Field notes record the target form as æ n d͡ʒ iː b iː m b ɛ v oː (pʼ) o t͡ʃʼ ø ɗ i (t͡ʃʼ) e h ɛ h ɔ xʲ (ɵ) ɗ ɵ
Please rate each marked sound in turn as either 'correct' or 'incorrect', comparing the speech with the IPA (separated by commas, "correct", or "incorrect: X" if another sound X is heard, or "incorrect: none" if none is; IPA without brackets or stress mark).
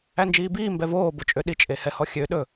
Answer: incorrect: b, correct, incorrect: ø